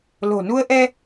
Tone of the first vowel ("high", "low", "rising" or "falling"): low